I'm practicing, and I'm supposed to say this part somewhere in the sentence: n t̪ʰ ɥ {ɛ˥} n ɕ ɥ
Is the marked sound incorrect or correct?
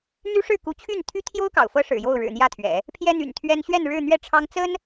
correct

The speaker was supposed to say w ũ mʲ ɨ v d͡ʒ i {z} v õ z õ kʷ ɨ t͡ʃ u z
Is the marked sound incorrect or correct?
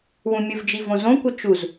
incorrect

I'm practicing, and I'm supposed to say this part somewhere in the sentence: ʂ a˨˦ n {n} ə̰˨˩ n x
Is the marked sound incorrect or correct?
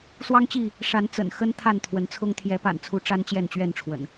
incorrect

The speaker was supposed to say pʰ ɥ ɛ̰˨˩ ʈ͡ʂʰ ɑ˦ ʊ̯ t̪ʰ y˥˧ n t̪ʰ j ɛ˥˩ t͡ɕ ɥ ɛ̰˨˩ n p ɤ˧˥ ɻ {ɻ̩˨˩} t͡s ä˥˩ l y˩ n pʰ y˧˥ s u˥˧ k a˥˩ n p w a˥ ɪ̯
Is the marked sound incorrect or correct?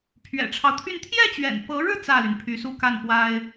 incorrect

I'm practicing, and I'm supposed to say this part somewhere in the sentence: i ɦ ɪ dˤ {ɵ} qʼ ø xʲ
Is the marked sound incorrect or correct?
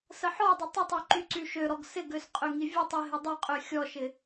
incorrect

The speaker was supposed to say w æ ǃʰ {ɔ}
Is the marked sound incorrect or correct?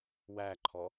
correct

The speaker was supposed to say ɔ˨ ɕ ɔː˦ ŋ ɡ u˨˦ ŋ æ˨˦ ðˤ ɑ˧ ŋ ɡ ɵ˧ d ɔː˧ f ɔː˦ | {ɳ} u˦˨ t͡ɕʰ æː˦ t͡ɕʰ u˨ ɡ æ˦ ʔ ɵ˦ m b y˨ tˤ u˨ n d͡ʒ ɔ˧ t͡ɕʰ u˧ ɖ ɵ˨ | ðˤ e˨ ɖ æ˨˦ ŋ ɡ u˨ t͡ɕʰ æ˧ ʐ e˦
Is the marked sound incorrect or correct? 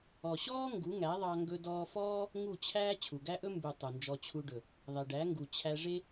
incorrect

